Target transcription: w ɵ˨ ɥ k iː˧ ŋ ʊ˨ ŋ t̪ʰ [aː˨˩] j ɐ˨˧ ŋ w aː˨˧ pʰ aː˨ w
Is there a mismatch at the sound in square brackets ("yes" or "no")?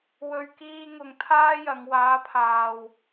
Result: yes